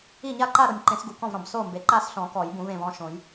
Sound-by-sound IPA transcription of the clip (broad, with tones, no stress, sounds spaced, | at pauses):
i˥˩ ɲ a˥˧ ǃ a˥˧ ɾ o˩ nʲ ǃ ẽ˨˩˦ s ɡ u˩ k ɔ̃˥˩ v ɾ ɔ̃˩ b s o˥˩ m b e˩ ǃ a˥˧ s ɬ ɔ̃˨˩˦ k ɔ˨˩˦ j b ũ˨˩˦ v ẽ˩ v ɔ̃˥˩ ʃ õ˨˩˦ j